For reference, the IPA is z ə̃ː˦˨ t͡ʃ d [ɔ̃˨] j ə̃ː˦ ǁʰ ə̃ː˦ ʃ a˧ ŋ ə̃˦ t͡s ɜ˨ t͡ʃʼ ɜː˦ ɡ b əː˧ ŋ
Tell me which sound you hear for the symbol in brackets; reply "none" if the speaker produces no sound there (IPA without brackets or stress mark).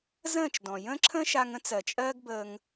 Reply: ɔ̃˨